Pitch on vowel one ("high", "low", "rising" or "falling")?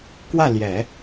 falling